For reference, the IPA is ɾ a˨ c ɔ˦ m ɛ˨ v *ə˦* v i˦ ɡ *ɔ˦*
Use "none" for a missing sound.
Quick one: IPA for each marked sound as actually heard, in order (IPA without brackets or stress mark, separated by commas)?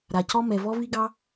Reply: ɔ˦, ɑ˦